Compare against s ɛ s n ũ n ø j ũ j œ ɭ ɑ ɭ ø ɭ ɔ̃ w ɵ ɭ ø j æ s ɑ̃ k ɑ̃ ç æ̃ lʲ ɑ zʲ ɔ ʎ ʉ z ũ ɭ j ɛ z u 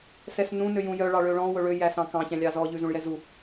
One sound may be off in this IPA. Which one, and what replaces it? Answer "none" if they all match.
zʲ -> z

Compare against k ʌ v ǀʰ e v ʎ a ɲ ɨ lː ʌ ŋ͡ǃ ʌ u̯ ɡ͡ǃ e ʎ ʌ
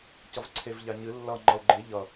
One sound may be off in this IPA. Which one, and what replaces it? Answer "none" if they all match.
k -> c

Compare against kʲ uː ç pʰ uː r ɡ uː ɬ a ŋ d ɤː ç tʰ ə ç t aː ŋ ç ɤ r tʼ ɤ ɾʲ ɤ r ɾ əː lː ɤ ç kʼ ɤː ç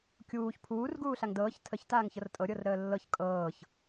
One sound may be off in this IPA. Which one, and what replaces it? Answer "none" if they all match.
none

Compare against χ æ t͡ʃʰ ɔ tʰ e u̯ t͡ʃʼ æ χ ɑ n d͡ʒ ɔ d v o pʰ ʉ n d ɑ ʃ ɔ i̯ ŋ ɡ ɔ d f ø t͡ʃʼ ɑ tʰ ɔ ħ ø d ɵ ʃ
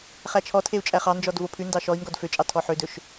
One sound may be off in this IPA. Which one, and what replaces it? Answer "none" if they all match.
none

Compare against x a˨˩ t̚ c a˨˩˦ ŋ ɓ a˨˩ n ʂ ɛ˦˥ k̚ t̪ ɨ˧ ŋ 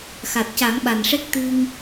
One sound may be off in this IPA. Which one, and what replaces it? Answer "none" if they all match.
none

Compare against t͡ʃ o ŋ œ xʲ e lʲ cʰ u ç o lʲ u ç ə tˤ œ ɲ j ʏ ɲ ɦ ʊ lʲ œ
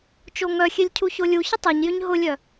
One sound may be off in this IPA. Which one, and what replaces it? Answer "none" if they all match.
none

